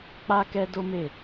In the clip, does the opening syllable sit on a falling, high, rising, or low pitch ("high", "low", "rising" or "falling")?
high